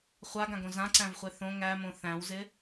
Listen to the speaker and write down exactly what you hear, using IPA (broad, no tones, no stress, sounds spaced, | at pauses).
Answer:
χʷ a ɡ ã ɡ õ z ã ǀ æ̃ v χʷ e θ õ ŋ æ m õ θ æ̃ w z ɪ